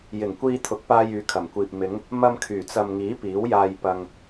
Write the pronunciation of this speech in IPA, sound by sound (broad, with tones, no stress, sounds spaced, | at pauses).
j ɪ˨˩ ŋ kʷ iː˧ t̪ʰ ʊ˨˥ k̚ p aː˧ j yː˨˥ kʰ ɐ˨˩ m kʷ iː˨ p̚ m ɪ˨˧ ŋ | m ɐ˧ m kʰ yː˨˩ t͡s ɐ˨ m ŋ iː˨˥ p iː˨˥ w j aː˧ j p ɐ˧ ŋ